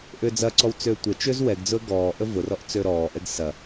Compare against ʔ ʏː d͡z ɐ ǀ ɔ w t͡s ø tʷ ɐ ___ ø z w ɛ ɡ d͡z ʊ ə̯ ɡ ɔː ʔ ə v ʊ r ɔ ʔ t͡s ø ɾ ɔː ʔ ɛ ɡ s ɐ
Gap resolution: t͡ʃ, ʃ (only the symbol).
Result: t͡ʃ